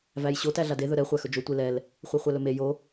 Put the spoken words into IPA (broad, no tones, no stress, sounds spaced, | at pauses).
v æ j ɕ o t æ ɮ a d e ð ɵ ɾ ɛ χʷ æ x ɵ d͡ʒ o tʷ e l ɛ l | χʷ e χʷ æ l ɵ m e j o